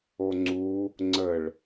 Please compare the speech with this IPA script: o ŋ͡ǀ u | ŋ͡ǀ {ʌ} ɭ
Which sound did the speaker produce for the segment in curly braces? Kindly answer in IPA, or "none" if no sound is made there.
ə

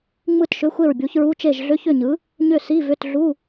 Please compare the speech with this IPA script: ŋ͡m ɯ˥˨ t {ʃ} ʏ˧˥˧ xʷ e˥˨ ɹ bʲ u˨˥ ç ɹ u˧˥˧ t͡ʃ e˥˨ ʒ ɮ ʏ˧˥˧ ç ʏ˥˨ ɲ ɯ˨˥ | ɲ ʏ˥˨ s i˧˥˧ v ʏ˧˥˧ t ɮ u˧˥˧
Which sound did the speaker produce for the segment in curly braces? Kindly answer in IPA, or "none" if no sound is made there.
ʃ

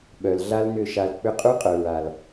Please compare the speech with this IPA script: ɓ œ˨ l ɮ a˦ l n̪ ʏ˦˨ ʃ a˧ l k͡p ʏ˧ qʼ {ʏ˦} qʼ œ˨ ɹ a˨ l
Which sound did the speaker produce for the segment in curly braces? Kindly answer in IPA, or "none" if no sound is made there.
u˦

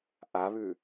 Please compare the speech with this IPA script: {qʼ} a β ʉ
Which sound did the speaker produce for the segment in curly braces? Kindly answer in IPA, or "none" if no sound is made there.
ʔ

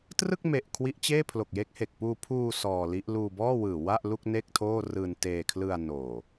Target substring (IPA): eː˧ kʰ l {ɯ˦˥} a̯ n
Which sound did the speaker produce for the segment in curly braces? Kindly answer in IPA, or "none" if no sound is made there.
ɯ˧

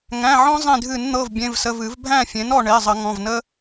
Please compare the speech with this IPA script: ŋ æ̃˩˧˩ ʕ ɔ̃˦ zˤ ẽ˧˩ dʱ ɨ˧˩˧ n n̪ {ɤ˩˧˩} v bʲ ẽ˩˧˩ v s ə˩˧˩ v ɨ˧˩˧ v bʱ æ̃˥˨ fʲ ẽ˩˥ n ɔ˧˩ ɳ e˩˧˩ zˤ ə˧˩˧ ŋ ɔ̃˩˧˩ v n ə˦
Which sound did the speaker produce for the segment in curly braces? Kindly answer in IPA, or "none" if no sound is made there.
ɤ˩˧˩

